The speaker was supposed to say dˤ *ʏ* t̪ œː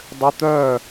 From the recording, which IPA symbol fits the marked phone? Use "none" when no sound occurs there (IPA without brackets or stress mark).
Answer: ʏ